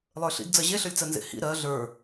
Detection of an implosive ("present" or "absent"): absent